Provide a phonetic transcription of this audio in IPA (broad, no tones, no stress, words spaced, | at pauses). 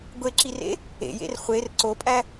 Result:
ɡʷeǁirḛ | ḛjḛr χʷer ǀopʼæ